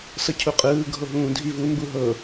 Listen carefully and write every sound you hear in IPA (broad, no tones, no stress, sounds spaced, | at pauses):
s ɤ cʰ u qʼ ɯː ɡʱ o ɦ ũː dʱ i v u m b u ɦ ɤ